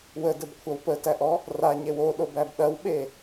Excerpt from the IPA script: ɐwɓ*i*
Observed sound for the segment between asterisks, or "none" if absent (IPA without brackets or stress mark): e